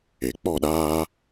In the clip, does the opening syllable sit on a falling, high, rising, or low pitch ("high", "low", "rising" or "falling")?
low